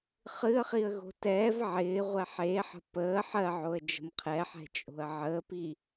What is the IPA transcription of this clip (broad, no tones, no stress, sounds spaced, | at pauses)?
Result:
χ ɨ ə̯ χ i ə̯ ɣ o̤ t ɛː v ʕ ɪː ʁʷ ɛ ħ e ħ ə̤ p əː ħ ɜ ʕ o ə̯ d͡ʒ ə̤ m qʰ ɛ ħ ɛ̤ t͡ʃʼ o̤ ə̯ ʕ əː p i